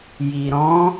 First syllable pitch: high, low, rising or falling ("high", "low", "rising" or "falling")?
low